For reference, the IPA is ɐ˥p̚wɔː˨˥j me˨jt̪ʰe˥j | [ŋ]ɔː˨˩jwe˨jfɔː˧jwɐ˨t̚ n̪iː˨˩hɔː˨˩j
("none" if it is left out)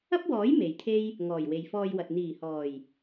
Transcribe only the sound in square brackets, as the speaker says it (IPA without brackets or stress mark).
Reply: ŋ